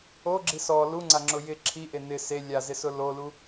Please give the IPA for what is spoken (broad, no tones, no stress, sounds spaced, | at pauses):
o ɡ͡ǁ i s ɔ l u ŋ͡ǀ a ŋ͡ǁ ʊ j ɪ ǁʰ i ʔ e n̪ ɪ s e lʲ a z ɪ s ʊ l o l u